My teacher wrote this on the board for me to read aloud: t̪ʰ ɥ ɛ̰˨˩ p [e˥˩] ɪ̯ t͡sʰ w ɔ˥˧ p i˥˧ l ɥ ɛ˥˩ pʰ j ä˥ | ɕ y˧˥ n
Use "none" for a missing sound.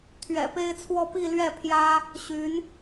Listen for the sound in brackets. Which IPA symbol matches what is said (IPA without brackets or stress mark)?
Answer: e˥